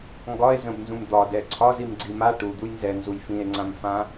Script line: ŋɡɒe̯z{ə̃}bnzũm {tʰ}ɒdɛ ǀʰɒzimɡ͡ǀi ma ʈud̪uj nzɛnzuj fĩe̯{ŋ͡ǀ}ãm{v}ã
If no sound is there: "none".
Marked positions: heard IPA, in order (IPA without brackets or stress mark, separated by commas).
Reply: ə̃, d̪, ŋ͡ǀ, f